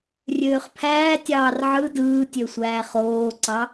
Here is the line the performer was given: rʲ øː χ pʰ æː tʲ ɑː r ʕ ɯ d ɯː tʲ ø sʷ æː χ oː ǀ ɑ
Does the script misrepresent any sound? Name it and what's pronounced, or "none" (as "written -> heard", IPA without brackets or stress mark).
none